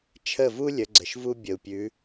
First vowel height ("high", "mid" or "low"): mid